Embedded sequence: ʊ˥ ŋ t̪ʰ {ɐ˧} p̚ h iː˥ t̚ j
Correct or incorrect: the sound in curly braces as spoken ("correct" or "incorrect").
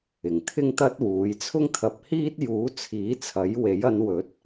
correct